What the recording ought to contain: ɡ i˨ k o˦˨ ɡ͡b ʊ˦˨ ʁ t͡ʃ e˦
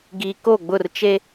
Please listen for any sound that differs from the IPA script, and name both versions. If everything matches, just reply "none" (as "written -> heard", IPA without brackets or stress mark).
ʁ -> r